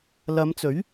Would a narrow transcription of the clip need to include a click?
no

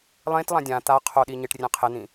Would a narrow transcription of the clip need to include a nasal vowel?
yes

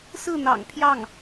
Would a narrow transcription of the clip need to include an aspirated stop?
yes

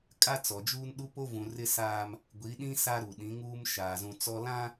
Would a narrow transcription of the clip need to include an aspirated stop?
no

